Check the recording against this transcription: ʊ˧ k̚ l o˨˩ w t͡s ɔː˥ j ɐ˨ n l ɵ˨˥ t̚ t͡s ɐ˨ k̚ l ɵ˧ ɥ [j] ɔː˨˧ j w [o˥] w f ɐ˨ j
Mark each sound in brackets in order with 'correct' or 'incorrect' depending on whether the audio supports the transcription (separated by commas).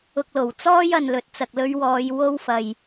incorrect, correct